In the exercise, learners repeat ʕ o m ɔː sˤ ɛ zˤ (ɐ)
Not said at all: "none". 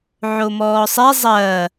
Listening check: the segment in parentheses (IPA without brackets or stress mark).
ɐ